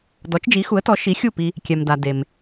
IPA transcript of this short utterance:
dɔ˩˥t͡ʃd͡ʒi˩˥xu˩˥ə̯tɔ˩˥ ʃi˩˥xʲu˥˩pi˧ | kʲɛ˩mda˩ de˩m

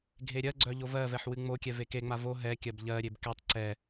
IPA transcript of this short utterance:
ɡʱeɾʲɜɡ͡ǀœ ʎovɜvɛħ wɨŋ͡mokʲɛ vekeŋ͡ma vo ɦɛ kʲɜbʎɜɾʲeb kɛtˤ ǀɛ

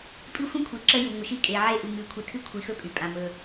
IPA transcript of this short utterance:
pʼi˦xʷĩ˦kʷʰi˨ ǁəː˦ju˨ ŋʷə˨ʃi˦ kʼe˨ʕe˦˨ ʔu˨ŋɨː˨kʷʰi˨ tʰɨ˦kʷʰi˨xɵ˦ pʼy˨ pʼã˨ mɵ˦

